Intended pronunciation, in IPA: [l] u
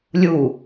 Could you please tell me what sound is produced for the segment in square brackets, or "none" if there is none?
lʲ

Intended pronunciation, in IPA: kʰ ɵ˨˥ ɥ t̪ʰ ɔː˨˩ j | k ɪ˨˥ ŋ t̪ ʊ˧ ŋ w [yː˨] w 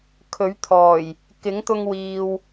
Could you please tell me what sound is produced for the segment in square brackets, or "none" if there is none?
iː˨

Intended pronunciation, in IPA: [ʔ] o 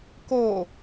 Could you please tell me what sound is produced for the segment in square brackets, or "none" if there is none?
k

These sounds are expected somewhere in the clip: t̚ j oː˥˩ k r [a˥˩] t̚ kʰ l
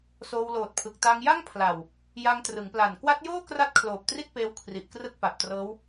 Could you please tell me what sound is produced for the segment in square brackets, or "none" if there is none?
a˥˩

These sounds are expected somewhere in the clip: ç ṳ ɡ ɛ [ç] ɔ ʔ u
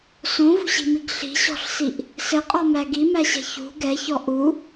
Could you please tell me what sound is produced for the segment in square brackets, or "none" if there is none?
ç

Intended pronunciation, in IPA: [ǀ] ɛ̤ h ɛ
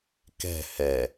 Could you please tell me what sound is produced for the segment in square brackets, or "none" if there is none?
k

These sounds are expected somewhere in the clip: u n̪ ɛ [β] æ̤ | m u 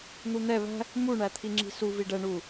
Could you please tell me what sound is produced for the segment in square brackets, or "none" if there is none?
β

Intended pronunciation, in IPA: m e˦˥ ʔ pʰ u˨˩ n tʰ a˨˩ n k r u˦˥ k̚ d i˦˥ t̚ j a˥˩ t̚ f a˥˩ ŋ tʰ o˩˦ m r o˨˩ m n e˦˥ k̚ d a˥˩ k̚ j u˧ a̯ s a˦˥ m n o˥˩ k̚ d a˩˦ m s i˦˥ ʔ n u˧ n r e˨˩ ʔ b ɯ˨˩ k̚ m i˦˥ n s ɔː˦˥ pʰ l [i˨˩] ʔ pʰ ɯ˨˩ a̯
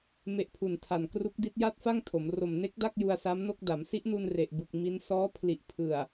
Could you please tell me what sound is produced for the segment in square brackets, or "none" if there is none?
i˨˩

